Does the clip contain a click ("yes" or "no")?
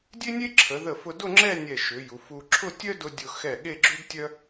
yes